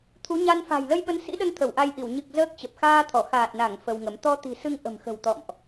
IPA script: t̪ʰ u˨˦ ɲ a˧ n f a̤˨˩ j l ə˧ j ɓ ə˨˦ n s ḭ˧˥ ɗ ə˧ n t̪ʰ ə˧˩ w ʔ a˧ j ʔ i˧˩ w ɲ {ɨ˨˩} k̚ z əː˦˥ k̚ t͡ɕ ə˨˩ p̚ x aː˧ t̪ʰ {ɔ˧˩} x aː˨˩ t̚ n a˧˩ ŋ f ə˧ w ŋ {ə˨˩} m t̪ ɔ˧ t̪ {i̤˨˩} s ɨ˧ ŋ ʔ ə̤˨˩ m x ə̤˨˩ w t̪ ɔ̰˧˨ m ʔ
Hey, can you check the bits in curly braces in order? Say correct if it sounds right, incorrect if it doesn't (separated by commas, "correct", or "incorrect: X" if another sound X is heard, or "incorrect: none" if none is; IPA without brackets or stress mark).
correct, correct, incorrect: ə˨˦, correct